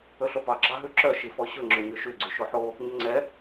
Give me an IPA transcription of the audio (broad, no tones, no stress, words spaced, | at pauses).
ɵɬopɑ ɡ͡ǁɑɦʉǁœ ʃifɔɕɵŋ͡ǁø ɲøʃyɡ͡ǀy ʃoħo | ɲɵŋ͡ǀɛ